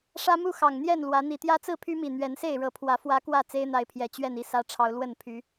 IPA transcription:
ʂä˦mu˥˨xɑ˨˩ŋn̪jɛ˥˨n lwä˨˦ n̪i˨˩t̪jä˦t͡sɹ̩˥˨ pʰy˦mi˨˩ n̪ɥɛ˨˦nse˥˨ɪ̯ɻɤ˨˦pʰwä˨˦ fwä˦kwä˥˨ t͡se˦ɪ̯n̪a˨˦ɪ̯pʰjɛ˨˩ t͡ɕɥɛ˥˨ni˥˨sä˦ʈ͡ʂʰɑ˨˦ʊ̯ lwə˥˨npʰy˨˦

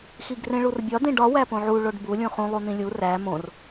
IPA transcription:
xiɡrẽɭurbʲɒ dẽɖɒ wæpõʕu ɭoɖbu lʲũχũ lˠun̪ĩlʲu ræ mõr

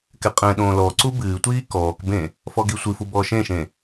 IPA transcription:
kɛqʼɛ̃ɗõː lɔǀu bɨːtʷiː kɔːkbẽ | fɔɡisʷɨfu bɔːʃẽʃẽ

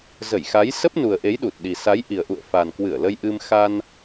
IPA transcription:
zə˧˩jxa˨˦j sə˦˥p̚nu˨˩ə̯ʔe˨˦j ɗu˨˩t̚ ɗi˨˩sa˨˦j ʔi˨˩ə̯ʔṵ˧˨ə̯ fa˨˩nkwɨ˧˩ə̯lə˧j ʔɨ˧m xa˧n

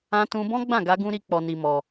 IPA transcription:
ã˧tũ˧ bɔ̃˦ ɡ͡bã˦˨ɡa˧ɡũ˧ ɾi˧ k͡pɔ˧ni˧mɔ˧

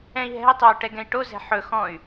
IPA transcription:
ɛ̃i̯ɦɛ̤i̯tˤøu̯ ʈɛɡɛ̃i̯ʈozɛ̤ ħɵ xɔ̃y̯

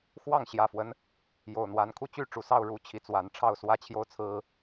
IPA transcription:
xwɑ˥˨ŋɕjä˨˩fwə˦n | jo˨˩ʊ̯n̪wa˨˦nkʰu˥˨ t͡ɕy˥˨ʈ͡ʂu˨˩sɑ˥˨ʊ̯ ɻu˥˨t͡ɕʰi˨˦t͡swa˨˦n ʈ͡ʂʰɑ˥˨ʊ̯swä˦t͡ɕʰjo˦ʊ̯ t͡sʰɹ̩˦

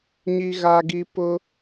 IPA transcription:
ɲi˨ɣa˨ɡi˨ pʊ˦

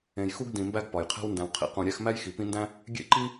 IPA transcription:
ẽ˨jxu˥ɡ dĩ˨mbæ˥ɡ pɒ˩jqʰæ̤˦wndæ̃˨wqʰḭ˥ qũ˨ ɾʲæ˥x mæ˥jxi˨pĩ˦ndæ̃˥ | ɡʲḛ˥ǃi˥

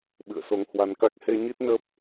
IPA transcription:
ɓɨ̰˧˨ə̯so˨˦ŋhwa˨˦nka˦˥k̚ he˧ɲi˦˥t̚nə˦˥p̚

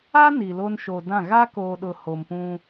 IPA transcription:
a˦ ni˨lo˦n ʃo˨dã˦˨ ɣa˦koː˨ɗʊ˨ ho˨mpũ˦

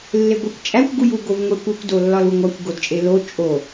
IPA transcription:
lːeɡʷikʷt͡ʃʼækʷ ɡuju ɡovŋʷekʷekʷ dolːɒluŋʷækʷ ɡodt͡ʃʼelo t͡ʃʼo

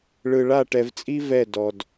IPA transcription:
ɭɯ˨ ɭa˦˨ʈɛ˨vt͡sʼi˦ vɛ˦˨dɔ˨d

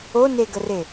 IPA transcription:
oneɡəre

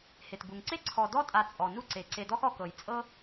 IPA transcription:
he˩tbu˩ŋǀe˥ ǀʰɔ˨dɔ˥ tʼa˨t͡sʼɔ˩nu˦ǀe˩ ǀe˨dɔ˦x ɔ˨kɤ˩j t͡sʼɤ˥

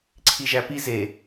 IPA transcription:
ǀʰiʒæpi ze

